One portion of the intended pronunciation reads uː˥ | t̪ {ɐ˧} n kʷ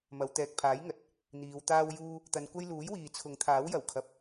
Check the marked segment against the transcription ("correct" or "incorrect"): correct